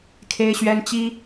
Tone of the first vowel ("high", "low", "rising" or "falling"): high